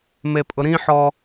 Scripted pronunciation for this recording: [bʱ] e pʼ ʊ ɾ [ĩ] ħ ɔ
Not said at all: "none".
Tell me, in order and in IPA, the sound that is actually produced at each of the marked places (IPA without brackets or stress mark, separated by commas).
m, ĩ